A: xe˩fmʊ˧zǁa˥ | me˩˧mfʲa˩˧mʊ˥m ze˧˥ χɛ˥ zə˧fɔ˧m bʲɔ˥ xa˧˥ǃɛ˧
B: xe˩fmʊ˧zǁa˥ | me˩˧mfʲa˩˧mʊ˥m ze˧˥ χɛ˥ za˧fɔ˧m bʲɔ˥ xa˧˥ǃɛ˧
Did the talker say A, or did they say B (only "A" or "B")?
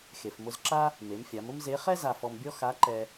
B